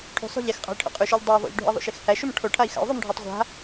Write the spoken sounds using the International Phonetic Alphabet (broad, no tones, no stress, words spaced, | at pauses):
ʈʰṳsˤṳ ʎɛxqʼa̤i̯ʈʰo̰ qʼʉʃʉʎ dˤʉu̯ ðˤṵʎɖʱṵi̯ðˤṵʃix hæʃum ʈʰoʈʰai̯ xa̰u̯ðˤomɖʱotˤ ʁʷa̤